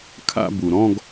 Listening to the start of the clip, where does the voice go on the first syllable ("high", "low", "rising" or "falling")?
falling